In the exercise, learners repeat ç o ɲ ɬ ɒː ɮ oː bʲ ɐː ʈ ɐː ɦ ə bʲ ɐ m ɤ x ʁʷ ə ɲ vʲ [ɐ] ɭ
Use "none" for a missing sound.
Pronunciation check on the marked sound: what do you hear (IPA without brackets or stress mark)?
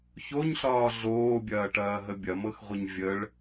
ə